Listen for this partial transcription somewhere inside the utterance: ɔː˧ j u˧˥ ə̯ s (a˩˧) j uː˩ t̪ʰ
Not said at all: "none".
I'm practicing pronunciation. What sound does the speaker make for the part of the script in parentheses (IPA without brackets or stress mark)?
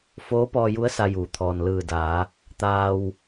a˧